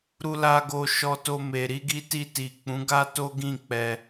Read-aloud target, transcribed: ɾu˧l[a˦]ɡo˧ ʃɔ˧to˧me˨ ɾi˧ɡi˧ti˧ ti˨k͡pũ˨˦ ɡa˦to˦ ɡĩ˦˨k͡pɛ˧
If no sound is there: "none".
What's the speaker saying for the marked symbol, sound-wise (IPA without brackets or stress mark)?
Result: a˧